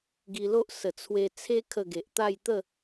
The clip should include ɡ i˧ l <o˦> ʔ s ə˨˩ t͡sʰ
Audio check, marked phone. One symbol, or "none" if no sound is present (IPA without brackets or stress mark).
o˦